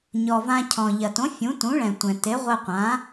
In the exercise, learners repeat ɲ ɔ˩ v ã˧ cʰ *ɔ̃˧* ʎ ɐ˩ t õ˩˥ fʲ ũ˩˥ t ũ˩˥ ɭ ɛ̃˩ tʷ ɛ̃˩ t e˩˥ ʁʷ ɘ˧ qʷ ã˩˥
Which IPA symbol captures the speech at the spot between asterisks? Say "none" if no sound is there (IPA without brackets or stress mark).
ɔ̃˩